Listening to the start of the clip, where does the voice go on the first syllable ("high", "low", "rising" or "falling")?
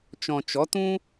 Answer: low